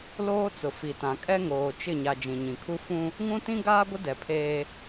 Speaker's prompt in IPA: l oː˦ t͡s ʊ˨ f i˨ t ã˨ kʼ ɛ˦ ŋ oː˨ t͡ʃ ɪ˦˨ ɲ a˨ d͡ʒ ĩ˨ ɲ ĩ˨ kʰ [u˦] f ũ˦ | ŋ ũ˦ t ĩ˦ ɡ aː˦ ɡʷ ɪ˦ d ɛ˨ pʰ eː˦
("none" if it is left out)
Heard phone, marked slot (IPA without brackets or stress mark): u˦